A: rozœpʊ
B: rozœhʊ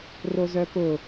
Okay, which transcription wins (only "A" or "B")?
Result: A